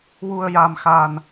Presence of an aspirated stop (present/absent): absent